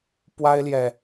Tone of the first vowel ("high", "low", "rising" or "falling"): high